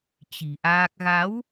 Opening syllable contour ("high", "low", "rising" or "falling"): low